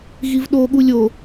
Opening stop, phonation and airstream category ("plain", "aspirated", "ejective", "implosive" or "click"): implosive